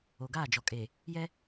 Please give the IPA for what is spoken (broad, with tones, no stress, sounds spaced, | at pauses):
o˨ ɡ aː˦˨ d͡ʒ ɔ˨ kʼ e˨ | j ɛ˦